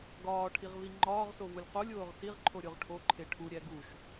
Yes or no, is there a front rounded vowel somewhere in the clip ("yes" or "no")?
no